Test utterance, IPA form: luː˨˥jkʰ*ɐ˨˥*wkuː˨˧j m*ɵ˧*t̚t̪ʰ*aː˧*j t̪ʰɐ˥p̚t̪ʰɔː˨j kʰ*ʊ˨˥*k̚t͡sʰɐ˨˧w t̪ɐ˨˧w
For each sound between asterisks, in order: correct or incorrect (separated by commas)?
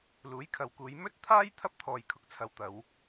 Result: incorrect, incorrect, incorrect, correct